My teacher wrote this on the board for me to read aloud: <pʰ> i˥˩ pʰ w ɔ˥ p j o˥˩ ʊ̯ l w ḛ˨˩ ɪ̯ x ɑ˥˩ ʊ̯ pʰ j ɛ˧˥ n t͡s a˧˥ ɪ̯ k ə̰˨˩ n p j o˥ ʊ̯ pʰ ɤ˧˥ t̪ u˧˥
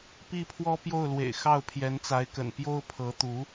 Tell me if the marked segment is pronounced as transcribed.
no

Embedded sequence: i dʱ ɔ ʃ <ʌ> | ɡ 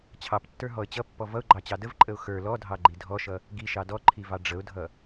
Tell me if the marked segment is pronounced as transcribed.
yes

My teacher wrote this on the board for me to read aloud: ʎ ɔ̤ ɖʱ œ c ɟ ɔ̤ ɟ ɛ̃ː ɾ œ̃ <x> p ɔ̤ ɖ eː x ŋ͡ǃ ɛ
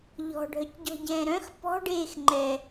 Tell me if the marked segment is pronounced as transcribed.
yes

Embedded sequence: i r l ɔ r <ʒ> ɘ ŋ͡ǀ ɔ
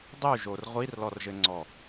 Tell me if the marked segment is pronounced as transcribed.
yes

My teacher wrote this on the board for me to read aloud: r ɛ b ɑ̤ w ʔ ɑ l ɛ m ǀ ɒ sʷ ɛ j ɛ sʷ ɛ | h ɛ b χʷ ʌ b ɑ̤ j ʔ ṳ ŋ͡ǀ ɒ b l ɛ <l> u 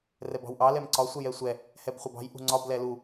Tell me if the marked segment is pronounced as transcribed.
yes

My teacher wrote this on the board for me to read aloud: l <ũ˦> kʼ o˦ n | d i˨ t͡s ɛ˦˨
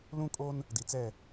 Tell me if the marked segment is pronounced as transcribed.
yes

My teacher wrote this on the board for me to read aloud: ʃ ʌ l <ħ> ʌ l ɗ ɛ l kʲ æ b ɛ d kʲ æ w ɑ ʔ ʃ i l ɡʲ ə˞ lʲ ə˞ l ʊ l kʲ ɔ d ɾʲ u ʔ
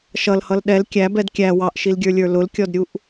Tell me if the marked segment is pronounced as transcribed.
no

